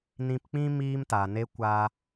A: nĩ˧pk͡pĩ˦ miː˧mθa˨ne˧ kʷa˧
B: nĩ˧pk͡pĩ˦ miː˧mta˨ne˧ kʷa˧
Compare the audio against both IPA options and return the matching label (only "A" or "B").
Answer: B